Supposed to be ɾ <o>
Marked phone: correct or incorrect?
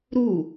incorrect: u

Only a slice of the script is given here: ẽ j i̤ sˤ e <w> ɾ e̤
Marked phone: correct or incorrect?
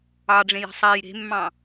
incorrect: j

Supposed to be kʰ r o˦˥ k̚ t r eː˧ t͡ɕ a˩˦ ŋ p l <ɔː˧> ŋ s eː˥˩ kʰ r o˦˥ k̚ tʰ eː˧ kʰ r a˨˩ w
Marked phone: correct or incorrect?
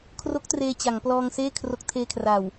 correct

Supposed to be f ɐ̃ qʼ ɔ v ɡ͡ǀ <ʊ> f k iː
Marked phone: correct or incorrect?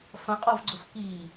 correct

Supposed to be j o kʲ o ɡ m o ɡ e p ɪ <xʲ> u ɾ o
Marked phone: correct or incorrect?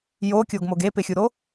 correct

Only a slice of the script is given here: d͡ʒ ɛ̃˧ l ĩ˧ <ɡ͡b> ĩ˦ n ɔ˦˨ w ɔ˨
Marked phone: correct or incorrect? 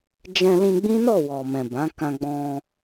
correct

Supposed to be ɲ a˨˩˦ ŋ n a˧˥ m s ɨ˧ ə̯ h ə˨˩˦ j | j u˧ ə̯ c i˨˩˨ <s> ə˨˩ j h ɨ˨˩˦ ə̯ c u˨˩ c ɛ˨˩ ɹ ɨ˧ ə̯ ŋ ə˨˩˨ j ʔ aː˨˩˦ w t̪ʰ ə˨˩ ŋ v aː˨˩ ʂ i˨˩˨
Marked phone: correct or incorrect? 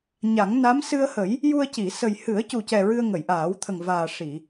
correct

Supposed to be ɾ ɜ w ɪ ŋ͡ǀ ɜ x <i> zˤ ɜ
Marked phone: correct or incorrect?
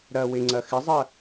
incorrect: ɪ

